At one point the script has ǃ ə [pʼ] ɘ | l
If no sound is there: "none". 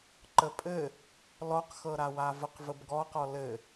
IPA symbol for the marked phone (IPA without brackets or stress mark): pʼ